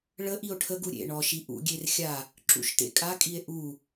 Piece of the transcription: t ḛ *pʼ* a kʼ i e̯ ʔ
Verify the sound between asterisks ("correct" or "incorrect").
incorrect